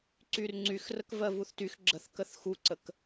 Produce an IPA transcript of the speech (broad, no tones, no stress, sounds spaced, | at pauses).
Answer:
ǀ y r ŋ͡ǀ y x r ə k v ɜ v u θ t y x ɡ͡ǁ ə θ k ə θ x u ǀ ə k